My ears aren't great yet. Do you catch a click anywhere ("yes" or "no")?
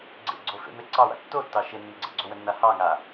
yes